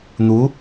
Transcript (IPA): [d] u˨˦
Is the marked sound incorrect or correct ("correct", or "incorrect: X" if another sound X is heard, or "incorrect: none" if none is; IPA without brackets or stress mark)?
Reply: incorrect: n̪